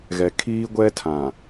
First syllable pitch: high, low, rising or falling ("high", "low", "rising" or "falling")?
low